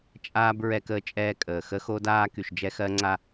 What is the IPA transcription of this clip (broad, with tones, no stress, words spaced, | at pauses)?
t͡ʃʼaː˦b ɹɛ˦kəː˦t͡ʃʼɛː˦ kʼəː˨ xə˦xo˦daː˦ ky˨ʃd͡ʒɛ˦xɜ˦ŋ͡ǀa˦